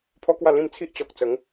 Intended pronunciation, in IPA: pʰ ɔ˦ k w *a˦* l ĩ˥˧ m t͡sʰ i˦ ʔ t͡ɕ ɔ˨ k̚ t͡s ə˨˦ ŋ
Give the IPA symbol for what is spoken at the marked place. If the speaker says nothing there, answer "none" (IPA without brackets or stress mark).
a˥˧